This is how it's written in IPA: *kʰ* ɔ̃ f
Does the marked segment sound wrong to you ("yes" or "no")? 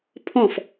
yes